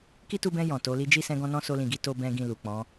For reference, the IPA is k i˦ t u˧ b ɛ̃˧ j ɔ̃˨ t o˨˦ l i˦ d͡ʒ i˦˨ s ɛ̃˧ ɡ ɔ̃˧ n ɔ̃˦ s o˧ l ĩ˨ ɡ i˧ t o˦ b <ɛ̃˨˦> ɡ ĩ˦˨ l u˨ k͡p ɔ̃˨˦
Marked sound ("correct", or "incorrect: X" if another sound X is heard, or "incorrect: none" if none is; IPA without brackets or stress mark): incorrect: ɛ̃˦